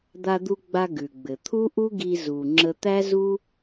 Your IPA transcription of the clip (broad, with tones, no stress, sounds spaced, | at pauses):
d̪ a˧ d̪ u˧ ɡ͡b a˧ ɡ ʉ˩ ɡ͡b ɘ˩ t̪ʰ u˥ ʔ u˥ ɡ i˧ z u˩ ŋ͡ǁ ə˧ t̪ æ˥ z u˥